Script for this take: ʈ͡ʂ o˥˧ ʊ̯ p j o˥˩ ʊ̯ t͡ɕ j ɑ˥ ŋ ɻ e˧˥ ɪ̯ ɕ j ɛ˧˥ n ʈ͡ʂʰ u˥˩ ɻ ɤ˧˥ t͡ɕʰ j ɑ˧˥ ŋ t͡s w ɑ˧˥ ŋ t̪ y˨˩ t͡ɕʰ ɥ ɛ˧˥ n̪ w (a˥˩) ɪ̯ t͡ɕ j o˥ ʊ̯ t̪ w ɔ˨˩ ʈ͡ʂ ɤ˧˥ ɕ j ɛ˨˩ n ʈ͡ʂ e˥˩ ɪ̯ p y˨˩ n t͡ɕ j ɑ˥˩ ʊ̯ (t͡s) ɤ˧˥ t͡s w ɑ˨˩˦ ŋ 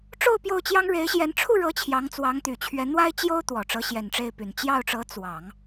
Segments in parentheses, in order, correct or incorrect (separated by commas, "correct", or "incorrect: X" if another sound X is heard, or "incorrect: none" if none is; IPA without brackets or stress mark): incorrect: a˥, incorrect: ʈ͡ʂ